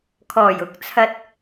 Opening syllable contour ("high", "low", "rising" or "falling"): low